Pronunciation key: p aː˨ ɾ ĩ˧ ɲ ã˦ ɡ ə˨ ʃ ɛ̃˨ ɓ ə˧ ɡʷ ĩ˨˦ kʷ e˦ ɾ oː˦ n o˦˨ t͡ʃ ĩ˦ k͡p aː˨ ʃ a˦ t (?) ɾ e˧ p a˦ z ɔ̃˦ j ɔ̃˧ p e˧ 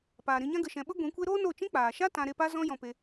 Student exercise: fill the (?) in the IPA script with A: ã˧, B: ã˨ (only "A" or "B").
A